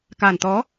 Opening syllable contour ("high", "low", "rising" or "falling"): low